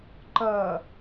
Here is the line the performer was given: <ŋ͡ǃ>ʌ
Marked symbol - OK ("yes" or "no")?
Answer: no